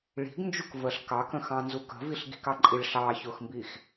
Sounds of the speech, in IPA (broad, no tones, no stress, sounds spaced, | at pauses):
ɭ i̤ ɡ n d͡ʒ u k v ə ɬ k ɑ k ə̃ x ɑ̃ n z u k ə̤ v i ɬ ɡ i̤ k ɑ ǃʼ i ɭ ɬ ɑː ç ʊː x m b iː x